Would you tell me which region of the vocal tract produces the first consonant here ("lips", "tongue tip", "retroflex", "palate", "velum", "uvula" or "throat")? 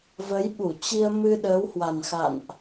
lips